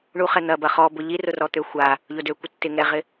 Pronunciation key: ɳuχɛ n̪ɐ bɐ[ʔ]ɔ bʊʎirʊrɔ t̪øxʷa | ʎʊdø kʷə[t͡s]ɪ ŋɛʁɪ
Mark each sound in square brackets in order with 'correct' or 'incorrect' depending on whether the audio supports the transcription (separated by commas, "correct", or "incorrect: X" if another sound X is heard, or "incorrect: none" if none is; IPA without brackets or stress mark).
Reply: incorrect: χ, incorrect: tː